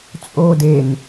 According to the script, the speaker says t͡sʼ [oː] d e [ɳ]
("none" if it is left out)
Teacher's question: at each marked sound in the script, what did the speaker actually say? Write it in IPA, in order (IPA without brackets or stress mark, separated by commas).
oː, n